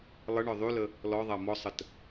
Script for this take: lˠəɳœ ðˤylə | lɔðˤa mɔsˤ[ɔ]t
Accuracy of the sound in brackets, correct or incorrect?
incorrect